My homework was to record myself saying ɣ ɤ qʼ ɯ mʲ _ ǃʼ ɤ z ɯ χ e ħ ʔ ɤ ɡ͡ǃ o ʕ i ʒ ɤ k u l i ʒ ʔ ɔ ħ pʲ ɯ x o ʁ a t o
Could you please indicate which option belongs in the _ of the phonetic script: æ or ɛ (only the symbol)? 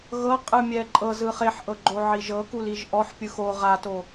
ɛ